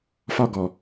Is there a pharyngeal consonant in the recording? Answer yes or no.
no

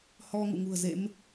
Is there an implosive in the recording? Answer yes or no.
no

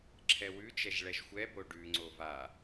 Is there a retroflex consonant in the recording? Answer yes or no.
yes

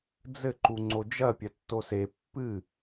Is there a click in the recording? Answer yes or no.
yes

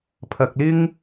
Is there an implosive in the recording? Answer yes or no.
no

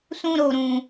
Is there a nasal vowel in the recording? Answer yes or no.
yes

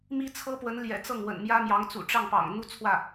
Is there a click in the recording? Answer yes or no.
no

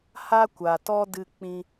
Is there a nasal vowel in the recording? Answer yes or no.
yes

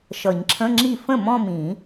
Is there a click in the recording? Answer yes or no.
yes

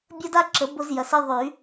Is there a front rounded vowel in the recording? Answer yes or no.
yes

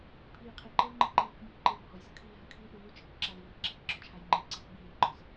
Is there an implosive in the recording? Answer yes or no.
yes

